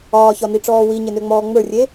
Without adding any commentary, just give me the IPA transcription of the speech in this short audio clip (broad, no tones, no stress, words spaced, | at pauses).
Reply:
ɒːçɒniʈ͡ʂɔː wiɲenøŋ͡mɔː ŋ͡mə˞rʲe